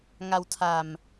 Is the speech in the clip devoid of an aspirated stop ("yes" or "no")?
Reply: no